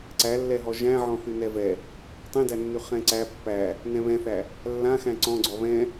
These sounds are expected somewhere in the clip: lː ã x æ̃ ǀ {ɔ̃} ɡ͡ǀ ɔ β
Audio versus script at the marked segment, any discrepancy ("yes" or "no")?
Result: no